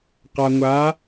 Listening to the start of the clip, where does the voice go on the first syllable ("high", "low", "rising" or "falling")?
low